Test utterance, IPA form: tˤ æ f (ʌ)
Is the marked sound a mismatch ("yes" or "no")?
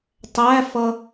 no